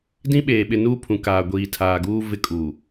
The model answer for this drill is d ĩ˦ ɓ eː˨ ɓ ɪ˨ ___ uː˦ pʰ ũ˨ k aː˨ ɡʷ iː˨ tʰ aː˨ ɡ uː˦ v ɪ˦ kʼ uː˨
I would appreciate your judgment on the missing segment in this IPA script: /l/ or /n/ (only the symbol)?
n